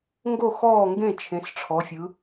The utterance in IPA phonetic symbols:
ŋ ɡ o˦˨ x ɔː˦˨ ŋ ɡ ẽ˦˨ t͡ʃʰ ẽ˩˧ s ʈ͡ʂʰ ɔ˩˧ fʲ ɯ˩˧

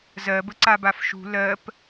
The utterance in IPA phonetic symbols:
z ɜ b ə ǀ a b a f ʃ ṳ l ɜ p

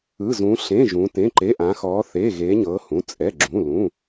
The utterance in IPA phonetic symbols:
ɯ˧˥˧ z ũ˧˥ ɬ ẽ˧˥˧ ʒ ũ˧˥ t ẽ˧˥˧ ǃ e˧˥˧ ʔ ã˧˥ x ɔː˧˥ θ eː˧˥˧ ɣ eː˧˥ ɲ ɤː˧˥ h ũ˧˥˧ t͡sʼ ɛ˧˥˧ ɡ͡ǁ ũ˧˥˧ l ũ˧˥˧

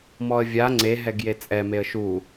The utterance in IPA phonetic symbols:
m ɔ ə̯ vʲ a ŋ͡ǀ e ɦ ɛ ɡ j e t͡sʼ ɛ m e ə̯ ʃ u

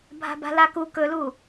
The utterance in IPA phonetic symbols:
bʱ a̤ b a̤ l a k u k ɵ l u

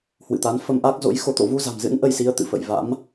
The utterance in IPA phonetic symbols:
h w ɨ̰˧˨ t̪ a˨˦ n f ə˧ m ʔ a˦˥ k̚ z o̰˧˥ j x o˨˦ t̪ o̰˧˨ v u˧ z a̤˨˩ m z ɨ̰˧˥ n ʔ ə˧ j s i˨˦ ə̯ t̪ ɨ̰˧˨ f ə̰˧˨ j v a̰˧˥ m

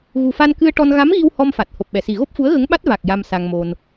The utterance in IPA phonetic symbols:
ɣ u˨˩ f a˧ n k ɨ˧ ə̯ ʈ ɔ˧ n ɣ a˧˥ m ɣ i˧ w h ɔ˧ m f a˨˩ t̚ h o˨˩ p̚ ɓ ɛ˨˩˨ s i˨˩ ɣ o˦˥ p̚ f u˧˥ ə̯ ɣ ə˧˥ ŋ ɓ a˦˥ t̚ v a˨˩ k̚ j a˧ m s a˧ ŋ m o˧ n

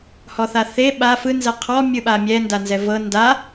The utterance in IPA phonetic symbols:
h ɔ θ a θ e ɓ a f ɯ n z ɛ qʰ ɔ mʲ ɯ ɓ a mʲ ɛ n d a n z ɛ v ɤ n d a

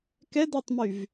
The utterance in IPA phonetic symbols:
k ɛ d a tˤ m y v

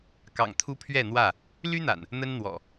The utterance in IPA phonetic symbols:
k ɑ̰˨˩ ŋ t̪ʰ u˦ pʰ ɥ ɛ˥˨ n̪ w ä˥˨ | l y˦ n̪ a̰˨˩ n | n̪ ə˦ n n̪ w ɔ̰˨˩

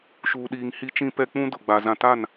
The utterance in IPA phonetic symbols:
ʃ uː˨ ɗ iː˨ ŋ h i˦ t͡ʃ ĩ˦ p ɛ˦ k͡p ũ˦ d ʊ˨ ɡ͡b a˨ z ã˦ t a˦˨ n

